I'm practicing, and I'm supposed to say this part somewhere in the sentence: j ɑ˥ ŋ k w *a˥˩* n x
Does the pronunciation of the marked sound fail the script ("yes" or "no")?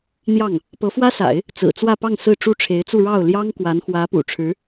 yes